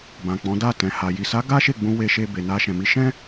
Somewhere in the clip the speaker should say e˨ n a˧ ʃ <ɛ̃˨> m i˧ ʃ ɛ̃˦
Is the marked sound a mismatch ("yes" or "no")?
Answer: no